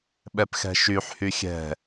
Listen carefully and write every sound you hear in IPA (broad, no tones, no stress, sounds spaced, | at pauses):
ɓ ɛ p x ɛ̤ ʃ y ħ h y xʲ ɛ̤